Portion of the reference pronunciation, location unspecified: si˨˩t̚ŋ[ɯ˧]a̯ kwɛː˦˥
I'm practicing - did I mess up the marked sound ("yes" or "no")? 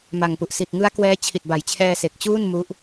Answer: yes